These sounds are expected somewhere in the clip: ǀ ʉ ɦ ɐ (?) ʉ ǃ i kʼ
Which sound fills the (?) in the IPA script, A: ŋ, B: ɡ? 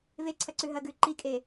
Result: B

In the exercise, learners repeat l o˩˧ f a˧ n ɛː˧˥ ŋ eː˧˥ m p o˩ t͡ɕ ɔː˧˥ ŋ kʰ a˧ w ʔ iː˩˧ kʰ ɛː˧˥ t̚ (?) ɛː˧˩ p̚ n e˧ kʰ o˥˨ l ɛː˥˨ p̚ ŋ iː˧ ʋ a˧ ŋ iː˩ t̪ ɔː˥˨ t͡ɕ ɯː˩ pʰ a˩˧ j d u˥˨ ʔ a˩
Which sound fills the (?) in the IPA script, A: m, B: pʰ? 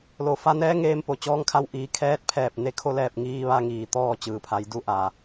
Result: B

